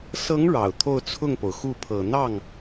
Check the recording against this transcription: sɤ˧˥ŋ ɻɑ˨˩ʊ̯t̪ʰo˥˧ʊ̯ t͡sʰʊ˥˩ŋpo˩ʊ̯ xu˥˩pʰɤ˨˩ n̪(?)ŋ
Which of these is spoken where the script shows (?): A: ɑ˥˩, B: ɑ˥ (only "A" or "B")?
A